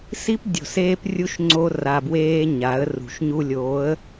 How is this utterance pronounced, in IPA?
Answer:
s i˦ p dʲ o̤˨ s eː˦ p rʲ u˦ ʃ ŋ͡ǀ o˦ r a˨ b w eː˦ ɲ a˨˦ ə̯ r ṳ˨ ʃ ɲ u˦ lʲ oː˨˦ ə̯

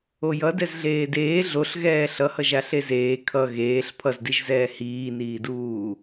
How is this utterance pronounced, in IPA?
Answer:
o j ʌ d ɛ z ɮ eː d eː ɮ o ɬ ɣ ɛː ɬ ʌ h ʌ ʒ a ɬ e z eː kʰ ʌ ɣ eː ɬ pʰ ʌ z d i ʒ z ɛː h iː n iː d uː

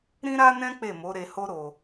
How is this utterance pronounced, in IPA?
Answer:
ɾ ĩ˦ ɾ a˦ n ɛ̃˦ k͡p e˦˨ m o˨˦ ɾ e˧ h o˦ ɾ o˧

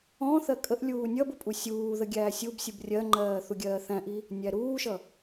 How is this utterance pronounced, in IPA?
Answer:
ɔ̃ θ ɜ kʼ ə ʔ lʲ uː nʲ ʌ b ʊ pʼ u sʲ uː ð ə ɡʲ æː sʲ u b sʲ u b rʲ ɜ ŋ͡ǃ ɜː θ u ɡʲ ɜː θ æ̃ ʔ i | nʲ æ ɾ uː ʃ ʌ

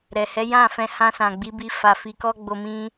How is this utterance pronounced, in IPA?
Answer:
ɾ ɛ˨ h ɛ˨˦ j ã˦˨ f ɛ̃˧ h ã˧ s ã˨ ɡ͡b i˨˦ b i˧ f a˧ f i˧ k ɔ˦ ɡ͡b o˧ m ĩ˧

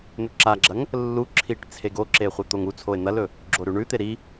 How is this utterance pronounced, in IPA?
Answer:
n̪ ɵ ǁ a ɡ͡ǁ ɐ ŋ | lː u ǁʰ i ʈ t͡sʰ e ɡ o ǁ e χʷ ɨ t̪ o ŋ u t͡sʰ o e̯ n̪ ɐ l ɵ | ɡ͡ǁ o ɾ ʉ ɳ ʉ t̪ e ɾ i

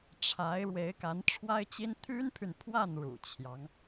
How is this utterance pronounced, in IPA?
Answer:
ʈ͡ʂʰ a˧˥ ɪ̯ ɻ w e˧˥ ɪ̯ k a˧˥ n ʈ͡ʂʰ w a˥ ɪ̯ t͡ɕ i˥ n t̪ʰ y˥ n pʰ y˨ n pʰ w a˥˩ n ɻ ṵ˨˩ t͡ɕʰ j ɑ˧˥ ŋ

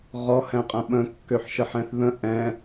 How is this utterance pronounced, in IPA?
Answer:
ʁ ɔ h ɛ̃ qʼ ə̃ ɓ ə̃ kː ø ħ ʃ ə ħ ɛ̃ θ ð ə̃ ʔ ɛ̃

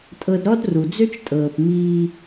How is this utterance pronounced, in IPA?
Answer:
tʼ ɤ˧ d ɾ ɔ˦ d r u˨ d͡z ø˦ t͡ʃ tʼ ɤː˨ p m iː˧

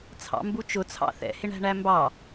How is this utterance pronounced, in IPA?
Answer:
t͡sʰ ɑ̰ m b u t͡ʃ ʊ t͡sʰ ɑ̰ θ ɛ̰ h ɪ ɳ æ̤ ɳ æ m b ɑ

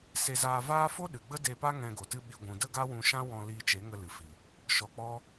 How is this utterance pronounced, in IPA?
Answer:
s e˧ z aː˧ v aː˦ f o˦ ɗ ɨ˨ ɡ͡b ə˦ d e˧ p a˦ ŋ ɛ̃˧ ɡ o˨ t ɨ˦ ɓ i˧ ɡʷ ũ˨ d ə˦ ɡ a˦ w ũ˧ ʃ ã˦ w ɔ̃˧ l iː˧ t͡ʃ e˨˦ ŋ ə˧ l ɨ˨ f i˨ | ʃ ɔ˧ k͡p ɔ˦

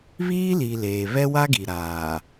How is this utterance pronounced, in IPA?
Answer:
β iː˦ l i˨ l eː˨ β ɛ˦ w a˦ ɡ i˨ ɾ aː˨

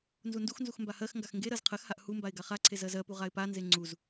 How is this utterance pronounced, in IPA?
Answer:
n z u n d u x n z u x m b a h ɜ x ŋ ɡ a x ŋ ɡ e ɾ ɜ z qʰ ɜ x h a ʔ h u m b a ɪ̯ ɡ a χ a ǀʰ e z ɜ z ɜ p u ʁ a ɪ̯ p a n z e ŋ͡ǀ u z

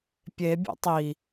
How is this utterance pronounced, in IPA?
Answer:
pʲ e bʲ o̰ tˤ i

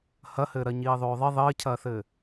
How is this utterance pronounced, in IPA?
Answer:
h ɐ h ɘː ɾ ɜ ɲ iː ðˤ oː ðˤ i ðˤ ɘː cʰ ɐː θ ɘː

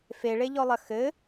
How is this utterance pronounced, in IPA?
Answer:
f e ɭ e ʎ ɔ lˠ ɐ x ɘ

